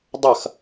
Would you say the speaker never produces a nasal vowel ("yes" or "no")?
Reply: yes